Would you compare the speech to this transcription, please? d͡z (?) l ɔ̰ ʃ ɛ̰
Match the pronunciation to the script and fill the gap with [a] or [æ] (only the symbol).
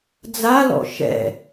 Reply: a